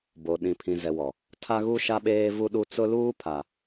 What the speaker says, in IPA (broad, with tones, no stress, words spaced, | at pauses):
bo˨ ɗĩ˨pʰĩ˨ zɛ˨wɔ˨ | tʰa˦ɣu˦ ʃa˦ɓeː˦vu˦ɗu˦ t͡sʊ˦luː˦ pʰa˨